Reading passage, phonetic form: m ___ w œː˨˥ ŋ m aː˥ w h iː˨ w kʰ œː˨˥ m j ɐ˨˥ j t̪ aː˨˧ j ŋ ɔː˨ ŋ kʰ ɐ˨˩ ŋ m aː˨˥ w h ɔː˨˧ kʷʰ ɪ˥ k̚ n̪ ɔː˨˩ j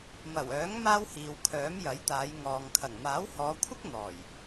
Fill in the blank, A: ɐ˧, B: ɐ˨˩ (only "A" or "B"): B